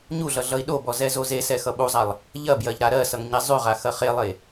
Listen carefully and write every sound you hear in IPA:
ɲ u ɮ ʌ ɮ ʌ i̯ ɗ o b ɔ z ɛ z o z e s ɛ x ʌ ɓ u zˤ a lˠ | ʎ ɐ b j ɜ ʎ ɾ a ɾ ɜ s ʌ ŋ ɲ e zˤ y ʁ a x ɐ χ e lˠ e

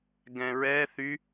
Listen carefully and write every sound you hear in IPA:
ɡ ɛ̃ ɹ ɛ θ y

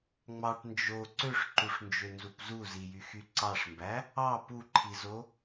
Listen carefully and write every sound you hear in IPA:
ŋ͡m ɑ ʈ n d͡ʒ o ǀ ø ʂ ǃ u ʂ n d͡ʒ ø n z u p z u z i j y x y ǀ ɑ ʂ m b æ | ɑ p u ǃʰ i z o

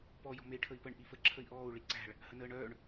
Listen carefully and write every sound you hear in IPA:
p ɔ j ɔ̤ m e i̯ ʈʰ ə i̯ p ə ɳ ʔ i f ə ǁʰ ə i̯ ʔ ɔː u̯ ɭ i ǀ æ̤ ɭ | h ə n əː ɳ œː ɳ

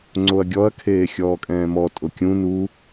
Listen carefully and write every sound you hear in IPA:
ŋ͡ǀ o ɐ̯ ɡʲ ɔ ɐ̯ kʰ eː xʲ ɔː kʼ ɛ̃ː m ɔ tʼ ʊ kʲ ũ n u

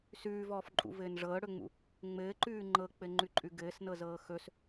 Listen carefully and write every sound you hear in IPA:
s ʉː v ɔː f ǃʼ ṵ v ɘː n ʐ ɤː ɽ ɵ ŋ͡m ṵ | ŋ͡m ɘː ǃ ʉː ŋ͡ǃ ɤ k͡p ɘ ŋ͡ǃ ʉ ǃʼ ʉ ɡ ɘː s n ɤ z ɤː x ɵ s

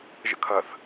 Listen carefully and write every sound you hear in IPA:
ʒ ə̰ kʰ ɐ θ

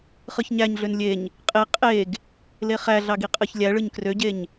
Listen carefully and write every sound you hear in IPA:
χ ɯ ç ɲ æ ɲ ɮ ø n lʲ e ɲ | qʼ e qʼ e ɡ | l e χ æ ɮ ɑ ɡ i qʼ ɯ ç lʲ æ ɭ ɯ ɲ k r ø ɟ e ɲ

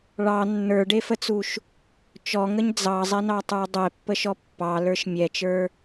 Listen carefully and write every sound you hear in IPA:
ɭ ɑ nː ə˞ ɖ e f ə t͡s u ʃ | t͡ʃ ɔ ŋ ə ɲ d͡z ɑ zˤ ɛ n ɑ tˤ ə˞ dˤ ɛ pː ə ʃ ɔ pː ɑ l ə˞ ʃ mʲ ɛ t͡ʃ ə˞

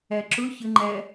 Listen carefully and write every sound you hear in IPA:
æ ǁ ʊ ç ə ŋ͡ǃ æ

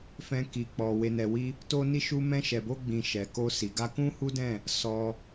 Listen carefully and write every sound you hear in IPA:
f ɛ̃˧ k i˨ k͡p ɔ˨ w e˨ n ɛ˨ w i˧ | t o˧ n i˧ ʃ u˧ m ɛ̃˧ ʃ ɛ˨ b o˧ ɡ͡b ĩ˨ ʃ ɛ˨ k o˧ s i˨ ɡ a˧ k ũ˦ h u˦ d ɛ̃˦˨ | s ɔ˧

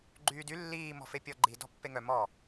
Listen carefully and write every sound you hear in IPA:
ɡ͡ǃ yː d y lː iː m ɔ̤ f e pʲ ɔ ɡ͡ǃ i d ɔ̤ pː e ŋ œ m ɔ

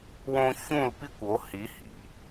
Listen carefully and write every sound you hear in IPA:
w õ˥ ç ũ˥˧ l p i˥ kʷ o˧˥ h i˧˥ h ḭ˩

